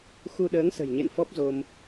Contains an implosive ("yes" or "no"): yes